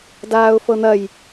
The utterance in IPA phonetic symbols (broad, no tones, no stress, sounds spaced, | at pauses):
d aː ʊ̯ f ɤ n̪ ɐ j